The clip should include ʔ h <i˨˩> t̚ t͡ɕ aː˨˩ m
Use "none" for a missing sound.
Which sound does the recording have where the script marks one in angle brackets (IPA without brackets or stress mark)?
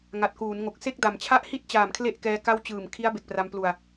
i˥˩